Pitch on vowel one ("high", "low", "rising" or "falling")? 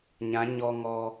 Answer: rising